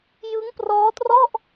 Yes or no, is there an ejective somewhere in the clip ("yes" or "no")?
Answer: no